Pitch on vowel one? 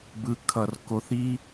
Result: low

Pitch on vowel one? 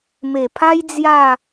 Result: low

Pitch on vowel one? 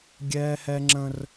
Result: high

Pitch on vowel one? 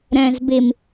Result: low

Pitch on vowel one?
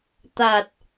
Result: low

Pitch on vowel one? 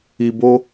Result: low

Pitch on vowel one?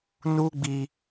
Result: high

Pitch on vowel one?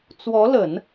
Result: rising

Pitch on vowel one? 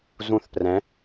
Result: falling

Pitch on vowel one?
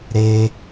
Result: high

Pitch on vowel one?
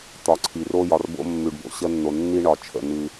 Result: low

